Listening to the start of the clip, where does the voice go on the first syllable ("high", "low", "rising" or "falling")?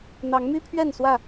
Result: rising